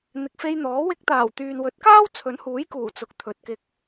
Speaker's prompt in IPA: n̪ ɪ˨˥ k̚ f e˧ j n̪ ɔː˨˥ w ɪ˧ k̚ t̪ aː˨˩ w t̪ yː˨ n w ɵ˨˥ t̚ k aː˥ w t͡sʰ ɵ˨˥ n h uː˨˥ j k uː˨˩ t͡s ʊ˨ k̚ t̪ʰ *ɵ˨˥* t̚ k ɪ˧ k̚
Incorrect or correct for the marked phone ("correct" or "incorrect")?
incorrect